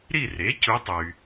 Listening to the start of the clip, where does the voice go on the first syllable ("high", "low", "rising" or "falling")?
falling